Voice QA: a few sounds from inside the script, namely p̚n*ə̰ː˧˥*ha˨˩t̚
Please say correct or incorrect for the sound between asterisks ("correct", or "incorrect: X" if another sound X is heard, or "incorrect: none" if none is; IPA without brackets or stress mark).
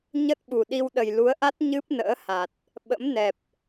correct